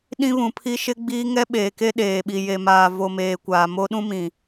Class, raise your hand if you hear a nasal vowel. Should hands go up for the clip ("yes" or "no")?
yes